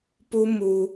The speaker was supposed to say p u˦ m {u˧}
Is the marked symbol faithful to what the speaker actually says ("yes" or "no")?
yes